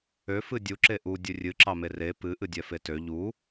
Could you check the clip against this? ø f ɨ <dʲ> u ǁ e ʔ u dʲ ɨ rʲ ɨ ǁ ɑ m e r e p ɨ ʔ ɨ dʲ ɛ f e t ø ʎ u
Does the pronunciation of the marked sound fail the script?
no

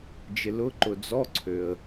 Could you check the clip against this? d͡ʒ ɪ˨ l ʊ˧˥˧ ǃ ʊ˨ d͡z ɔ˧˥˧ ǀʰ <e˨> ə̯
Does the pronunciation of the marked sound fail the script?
yes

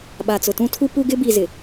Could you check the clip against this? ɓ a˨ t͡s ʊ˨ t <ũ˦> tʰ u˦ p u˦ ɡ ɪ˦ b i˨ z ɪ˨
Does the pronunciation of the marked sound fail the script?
no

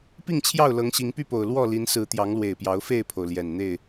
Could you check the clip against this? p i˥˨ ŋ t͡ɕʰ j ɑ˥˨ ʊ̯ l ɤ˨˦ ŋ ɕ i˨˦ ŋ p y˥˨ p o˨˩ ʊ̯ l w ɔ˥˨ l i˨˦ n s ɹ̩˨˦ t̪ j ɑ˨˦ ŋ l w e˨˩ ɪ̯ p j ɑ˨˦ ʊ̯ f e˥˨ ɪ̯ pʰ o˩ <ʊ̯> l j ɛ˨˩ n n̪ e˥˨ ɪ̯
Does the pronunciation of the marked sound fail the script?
no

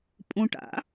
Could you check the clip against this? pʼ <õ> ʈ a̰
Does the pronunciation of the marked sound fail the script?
no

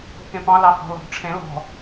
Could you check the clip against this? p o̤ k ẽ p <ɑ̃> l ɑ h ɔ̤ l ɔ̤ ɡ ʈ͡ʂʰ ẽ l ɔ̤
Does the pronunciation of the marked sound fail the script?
no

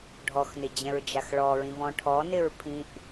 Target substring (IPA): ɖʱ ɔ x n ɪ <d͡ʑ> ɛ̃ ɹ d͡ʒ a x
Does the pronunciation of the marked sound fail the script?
no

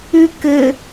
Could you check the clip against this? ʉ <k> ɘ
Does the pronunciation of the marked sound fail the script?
no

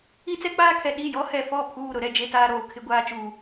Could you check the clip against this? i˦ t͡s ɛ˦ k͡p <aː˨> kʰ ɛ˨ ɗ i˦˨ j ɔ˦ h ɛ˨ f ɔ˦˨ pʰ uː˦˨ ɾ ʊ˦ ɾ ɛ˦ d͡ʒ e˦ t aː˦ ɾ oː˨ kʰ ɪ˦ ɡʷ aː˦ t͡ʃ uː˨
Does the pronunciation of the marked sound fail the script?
yes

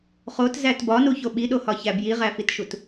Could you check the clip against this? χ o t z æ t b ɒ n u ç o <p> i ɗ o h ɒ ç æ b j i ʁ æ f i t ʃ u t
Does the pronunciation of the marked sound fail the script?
yes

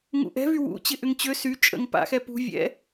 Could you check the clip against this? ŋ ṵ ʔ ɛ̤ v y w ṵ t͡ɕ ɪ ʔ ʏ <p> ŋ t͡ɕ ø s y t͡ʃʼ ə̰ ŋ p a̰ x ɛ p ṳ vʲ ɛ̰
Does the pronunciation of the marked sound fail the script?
yes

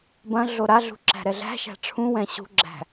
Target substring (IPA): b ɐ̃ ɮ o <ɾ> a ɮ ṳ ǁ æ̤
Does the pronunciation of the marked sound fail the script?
no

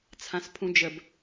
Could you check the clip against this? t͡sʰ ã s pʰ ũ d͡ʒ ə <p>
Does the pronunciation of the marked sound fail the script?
yes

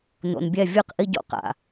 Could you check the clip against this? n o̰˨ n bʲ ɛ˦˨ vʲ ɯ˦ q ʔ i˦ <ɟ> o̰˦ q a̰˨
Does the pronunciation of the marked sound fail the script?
no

